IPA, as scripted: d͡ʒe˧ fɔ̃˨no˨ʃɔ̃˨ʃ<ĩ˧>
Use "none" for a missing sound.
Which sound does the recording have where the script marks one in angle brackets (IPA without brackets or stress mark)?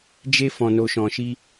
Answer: i˧